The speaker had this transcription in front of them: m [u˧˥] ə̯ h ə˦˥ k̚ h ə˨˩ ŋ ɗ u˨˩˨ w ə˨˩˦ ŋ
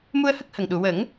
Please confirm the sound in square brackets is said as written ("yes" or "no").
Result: no